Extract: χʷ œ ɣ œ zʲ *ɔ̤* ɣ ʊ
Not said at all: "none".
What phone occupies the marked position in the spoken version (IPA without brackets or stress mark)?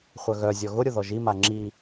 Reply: ɔ